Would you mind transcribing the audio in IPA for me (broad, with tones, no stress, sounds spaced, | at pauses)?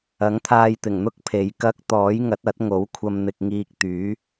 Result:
ɐ˨˥ ŋ t̪ʰ aː˧ j t̪ ɪ˨˩ ŋ n̪ ʊ˥ k̚ pʰ e˨˧ j k ɐ˥ k̚ t̪ ɔː˨˥ j ŋ ɐ˨˥ t̚ ɐ˨˥ t̚ ŋ o˨˥ w kʷʰ ɐ˧ m n̪ ɪ˧ k̚ ŋ iː˧ k̚ t̪ yː˨˥